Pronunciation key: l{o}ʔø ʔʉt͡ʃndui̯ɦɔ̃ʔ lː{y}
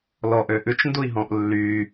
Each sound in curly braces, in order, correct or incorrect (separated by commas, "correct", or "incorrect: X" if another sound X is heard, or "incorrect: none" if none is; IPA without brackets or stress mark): incorrect: ɔ, correct